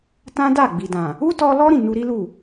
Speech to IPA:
tã˦da˦˨ ɡ͡bi˨dã˨ | u˦tɔ˧lɔ˦ ɾĩ˦˨nu˧ɾi˦lu˦˨

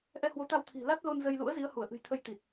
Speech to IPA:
ʔɛ˧hwo˨˦t̪a˧wt̪ʰi̤˨˩ la˦˥t̚lo˧n zə˧j lṵ˧˥ə̯zi˨˦ə̯hu˧˩ə̯ ʔɨ̤˨˩jt̪ʰə˧j t̪i˨˩t̚

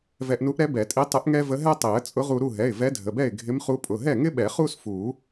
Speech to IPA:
vɛ˧ʔnu˧˥ʔɾɛ˧˥ bɛ˨˩˦tʼi˧˥tˤɪ˧˥ʔ ŋɛ˥və˧˥ ɦɛ˥tˤi˨˩˦ə̯ t͡sʼʊ˧˥ʁu˧ɾu˥˨ ɦɛ˩˧˩ɪ̯vɛ˧˥dʱə˩˧˩bɛ˥˨ɪ̯ ɡʱɪ˧˥mχu˧˥pʼʊ˩˧˩ ɦɛ˥˨ŋɪ˥ɓɛ˨˩˦ χu˥s fu˨˩˦

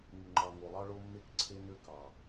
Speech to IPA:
ŋu˨ŋ͡ǃɑ˨ ŋo˨lˠɑ˦ɭo˦mːe˦k ǀʰe˦nø˦ kɑ˨

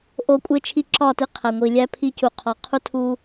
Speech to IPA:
ʔo˦kʷʼe˦ t͡ʃʰi˦ǁɒ˦˨ti˦ qʰæ˨ŋʷi˨lʲæ˦ pʰi˦cu˨qʰɒ˨ qʰu˦tʰu˦

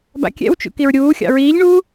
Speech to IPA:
ba̰kʲɛ̰wt͡ʃṵ kiɹɾʲuːxʲɑ̰ ɹiːʎɳuː

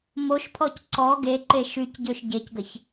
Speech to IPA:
moʃpʰɔc ǀɔ ɡeǃe ʃycɟøʃ ɟecɡəç

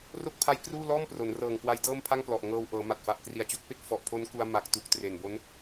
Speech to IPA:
ro˥˩k̚pʰa˦˥jkruː˥˩ lɔː˥˩mpro˩˦n rɤː˨˩ŋ kwa˦˥jdɤː˥˩mpʰa˥˩ŋplɔ˨˩ʔ ŋɤː˧w ʔɤː˩˦ma˨˩t̚fa˨˩ʔ kri˨˩a̯t͡ɕo˥˩k̚pe˦˥k̚ fɔ˨˩ʔpʰo˦˥n ku˧a̯ ma˨˩k̚tu˨˩k̚ tre˨˩nbo˦˥n

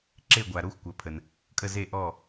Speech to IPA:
ǁe˧˩ɡʷa˩ɾo˧˩xʷ kʷɜ˩pʰə˩n | kʼə˧˩ze˧˩ʔɔ˧˩

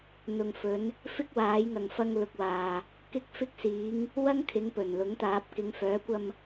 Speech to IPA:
n̪ʊ˨ŋfɵ˨˧n | fɪ˥k̚waː˨˥jŋɐ˨ŋfɐ˧ŋ lʊ˨˥k̚waː˨ | kɪ˧k̚fɪ˧k̚siː˨˧ŋ | wɐ˥ŋkʰɪ˨˥ŋpɵ˨˩n lʊ˨˥ŋt̪aː˨˥p̚ kɪ˨˧ŋfœː˨˥kʷɐ˧m

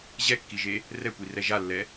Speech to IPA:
ʑɛkːiʒe | rɛkʷirɛ ʒalːɛ

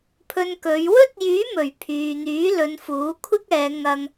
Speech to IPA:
pʰɵ˧nkɵ˨˧ɥ wɵ˥t̚jyː˨˥mɵ˨˩ɥ pʰyː˨n̪yː˨˥lɵ˨˧nfuː˨˥ kʷʰɪ˥k̚ɛː˨˧ ŋɐ˧ŋ

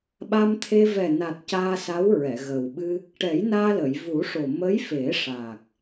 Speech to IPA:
ɓa˧mt̪ʰe˧ vɛ˨˩na˨˩t̚ caː˧sa˧˥wɹɛ˨˩˨ ɣə˨˩wɓɨ˧ | ʈɛ˨˩˦j naː˧lə˨˩˨jvu˨˩˦ʂo˨˩ mə˧˥jfe˨˩˦ʂaː˨˩k̚

